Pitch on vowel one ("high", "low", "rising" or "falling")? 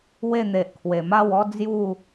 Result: falling